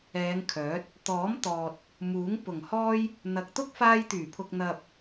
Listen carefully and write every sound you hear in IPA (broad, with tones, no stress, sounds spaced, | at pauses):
ɛː˨˧ ŋ kʰ œː˨˥ t̚ | t̪ ɔː˨˥ m t̪ ɔː˨ t̚ | m uː˨˥ ŋ p ʊ˨˩ ŋ h ɔː˥ j | n̪ ɐ˨ k̚ t̪ ʊ˥ k̚ f aː˧ j t̪ yː˨˩ pʰ ʊ˨ k̚ n̪ ɐ˨ p̚